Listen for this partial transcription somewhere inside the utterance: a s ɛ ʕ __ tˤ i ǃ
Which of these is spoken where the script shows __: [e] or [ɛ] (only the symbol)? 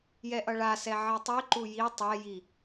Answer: e